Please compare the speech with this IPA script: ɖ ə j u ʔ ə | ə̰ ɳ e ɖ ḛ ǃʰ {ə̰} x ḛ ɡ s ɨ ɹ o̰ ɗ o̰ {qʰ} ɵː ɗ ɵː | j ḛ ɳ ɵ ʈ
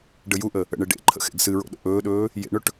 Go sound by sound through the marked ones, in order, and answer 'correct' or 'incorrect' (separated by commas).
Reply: correct, incorrect